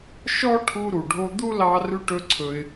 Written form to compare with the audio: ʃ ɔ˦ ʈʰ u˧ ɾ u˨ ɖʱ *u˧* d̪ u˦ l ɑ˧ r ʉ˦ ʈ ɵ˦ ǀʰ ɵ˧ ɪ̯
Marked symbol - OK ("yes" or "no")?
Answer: no